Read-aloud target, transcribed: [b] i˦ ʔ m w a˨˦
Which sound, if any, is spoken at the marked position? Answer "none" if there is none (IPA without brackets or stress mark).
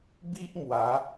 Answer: b